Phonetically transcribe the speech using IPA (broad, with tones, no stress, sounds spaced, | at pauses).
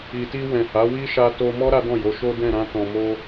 i˨ t i˧ w ɛ̃˨ h a˨˦ w i˦ ʃ a˧ t o˧ m ɔ˦ ɾ a˦ d ɔ̃˦˨ j o˨˦ ʃ o˦ d ɛ̃˦˨ ɾ ã˧ t ɔ̃˨ m o˧